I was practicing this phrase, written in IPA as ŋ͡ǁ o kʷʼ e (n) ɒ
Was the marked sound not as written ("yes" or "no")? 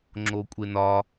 no